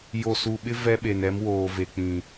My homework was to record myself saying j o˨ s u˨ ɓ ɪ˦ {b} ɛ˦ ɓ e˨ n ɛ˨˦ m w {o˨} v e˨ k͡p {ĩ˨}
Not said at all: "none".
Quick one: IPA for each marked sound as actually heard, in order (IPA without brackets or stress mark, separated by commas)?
v, oː˨, ĩ˨